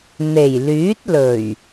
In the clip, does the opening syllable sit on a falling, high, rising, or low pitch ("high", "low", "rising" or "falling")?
low